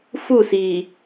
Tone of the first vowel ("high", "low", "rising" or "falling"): falling